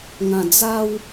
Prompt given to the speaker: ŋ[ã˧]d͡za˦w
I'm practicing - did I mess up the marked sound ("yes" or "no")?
no